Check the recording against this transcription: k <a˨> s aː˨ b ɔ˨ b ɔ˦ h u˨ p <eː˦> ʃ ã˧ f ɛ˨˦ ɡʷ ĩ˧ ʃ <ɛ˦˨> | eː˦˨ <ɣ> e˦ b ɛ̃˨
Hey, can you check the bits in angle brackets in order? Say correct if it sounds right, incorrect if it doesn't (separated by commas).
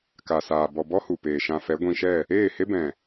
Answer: correct, incorrect, correct, incorrect